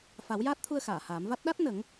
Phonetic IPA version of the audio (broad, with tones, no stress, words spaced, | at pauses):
fa˨˩˦wjaː˦˥t̚t̪ʰu˧ə̯ xaː˨˩˨haː˨˩˦m va˦˥t̚ ɗa˦˥t̚ nə˨˩˦ŋ